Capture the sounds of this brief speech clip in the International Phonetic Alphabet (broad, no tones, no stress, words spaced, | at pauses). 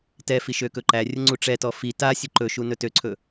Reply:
tɛfi ʃøkɵǃærʲə ŋ͡ǀuʈ͡ʂɛtɔ fi tasʲɵ ǃɵʃu nɵtøǀʰɵ